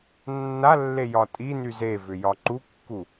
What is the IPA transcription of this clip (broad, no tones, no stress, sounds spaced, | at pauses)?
nː a lː e j ɒ tʼ i n y z e v ʏ j ɒ ǃ u kː u